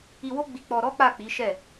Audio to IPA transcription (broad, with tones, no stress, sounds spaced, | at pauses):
i˧ w o˦ ɡ͡b i˧ k͡p ɔ˧ ɾ ɔ˦ k͡p a˦˨ k͡p i˨˦ ʃ ɛ˦˨